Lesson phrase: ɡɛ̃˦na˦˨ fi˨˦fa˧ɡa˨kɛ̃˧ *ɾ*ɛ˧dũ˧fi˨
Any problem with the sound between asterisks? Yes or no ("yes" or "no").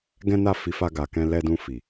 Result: yes